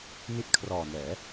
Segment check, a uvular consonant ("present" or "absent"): absent